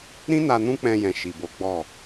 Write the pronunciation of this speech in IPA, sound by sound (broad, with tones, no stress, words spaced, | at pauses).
ɾĩ˦na˧ nũ˦k͡pɛ̃˧jɛ̃˨ ʃi˨bo˨˦ ɡ͡bɔ˦˨